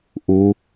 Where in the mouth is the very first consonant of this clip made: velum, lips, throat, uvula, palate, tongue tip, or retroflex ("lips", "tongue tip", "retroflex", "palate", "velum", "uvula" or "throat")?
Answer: throat